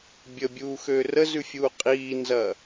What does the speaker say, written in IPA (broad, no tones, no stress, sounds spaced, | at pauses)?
bʲ ə bʲ uː x øː r ə z ʉ fʲ uː qʼ iː n z ɐː